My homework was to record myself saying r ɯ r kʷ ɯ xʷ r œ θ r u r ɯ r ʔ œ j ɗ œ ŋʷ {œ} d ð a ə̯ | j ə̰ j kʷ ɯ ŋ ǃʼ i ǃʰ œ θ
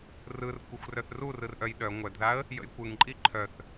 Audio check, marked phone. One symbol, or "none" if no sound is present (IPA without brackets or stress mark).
œ